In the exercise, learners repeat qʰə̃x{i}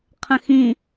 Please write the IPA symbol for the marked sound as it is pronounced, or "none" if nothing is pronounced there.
ĩ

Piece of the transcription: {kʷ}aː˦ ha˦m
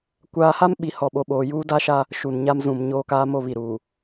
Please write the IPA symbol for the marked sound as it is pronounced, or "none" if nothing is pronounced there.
kʷ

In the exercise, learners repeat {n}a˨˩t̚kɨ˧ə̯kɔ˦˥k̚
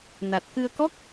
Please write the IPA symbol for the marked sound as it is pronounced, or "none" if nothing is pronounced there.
n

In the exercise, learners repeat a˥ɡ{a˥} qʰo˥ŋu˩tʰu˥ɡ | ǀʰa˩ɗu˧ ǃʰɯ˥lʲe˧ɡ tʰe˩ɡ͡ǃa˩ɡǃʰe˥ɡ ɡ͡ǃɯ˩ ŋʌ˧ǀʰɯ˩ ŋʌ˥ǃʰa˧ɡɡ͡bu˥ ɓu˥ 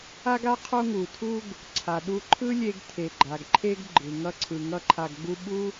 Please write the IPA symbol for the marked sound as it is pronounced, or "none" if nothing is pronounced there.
a˥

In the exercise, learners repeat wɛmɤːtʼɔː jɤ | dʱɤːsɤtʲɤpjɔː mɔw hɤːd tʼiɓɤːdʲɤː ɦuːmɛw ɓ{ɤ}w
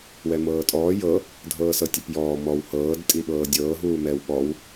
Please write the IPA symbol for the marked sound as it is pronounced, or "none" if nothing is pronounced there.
ɔ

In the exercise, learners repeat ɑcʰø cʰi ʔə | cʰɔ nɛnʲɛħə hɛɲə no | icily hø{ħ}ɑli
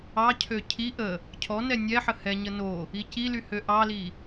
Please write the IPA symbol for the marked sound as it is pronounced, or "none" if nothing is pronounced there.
ʔ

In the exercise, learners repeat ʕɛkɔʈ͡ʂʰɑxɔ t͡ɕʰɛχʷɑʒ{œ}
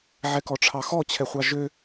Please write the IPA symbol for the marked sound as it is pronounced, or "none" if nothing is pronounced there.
ø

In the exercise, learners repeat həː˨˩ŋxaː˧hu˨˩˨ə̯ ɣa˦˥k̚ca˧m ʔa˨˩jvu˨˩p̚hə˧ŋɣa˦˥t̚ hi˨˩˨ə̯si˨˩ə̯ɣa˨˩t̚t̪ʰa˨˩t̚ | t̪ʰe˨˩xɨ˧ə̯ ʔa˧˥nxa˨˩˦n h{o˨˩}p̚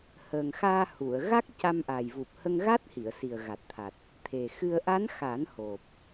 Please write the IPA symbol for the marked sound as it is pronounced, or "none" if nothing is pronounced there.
o˨˩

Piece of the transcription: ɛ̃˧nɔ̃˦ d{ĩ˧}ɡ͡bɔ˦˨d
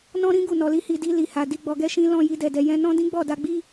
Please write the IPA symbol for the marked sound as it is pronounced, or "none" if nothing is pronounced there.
ĩ˦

